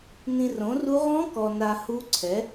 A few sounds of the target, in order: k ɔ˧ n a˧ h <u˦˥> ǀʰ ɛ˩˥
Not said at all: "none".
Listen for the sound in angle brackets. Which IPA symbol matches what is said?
u˦˥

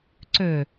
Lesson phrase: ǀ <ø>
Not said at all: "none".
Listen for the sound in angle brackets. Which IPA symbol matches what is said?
ø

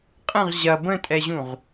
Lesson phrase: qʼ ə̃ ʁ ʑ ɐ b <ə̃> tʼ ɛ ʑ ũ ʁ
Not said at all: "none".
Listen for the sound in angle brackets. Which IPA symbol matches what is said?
ə̃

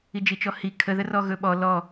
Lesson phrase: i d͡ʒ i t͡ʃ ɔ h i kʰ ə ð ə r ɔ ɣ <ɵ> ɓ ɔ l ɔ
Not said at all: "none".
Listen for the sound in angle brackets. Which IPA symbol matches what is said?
ɵ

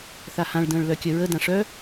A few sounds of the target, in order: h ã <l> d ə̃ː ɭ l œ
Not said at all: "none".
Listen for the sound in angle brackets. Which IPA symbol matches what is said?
ɭ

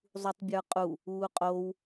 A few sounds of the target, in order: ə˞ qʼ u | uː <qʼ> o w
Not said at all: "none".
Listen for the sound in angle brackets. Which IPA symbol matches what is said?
qʼ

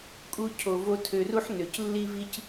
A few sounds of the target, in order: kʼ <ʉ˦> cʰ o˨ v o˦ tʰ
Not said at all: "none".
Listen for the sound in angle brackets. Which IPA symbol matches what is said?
u˦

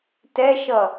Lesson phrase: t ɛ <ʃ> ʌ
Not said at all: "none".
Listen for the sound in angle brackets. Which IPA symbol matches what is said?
ʃ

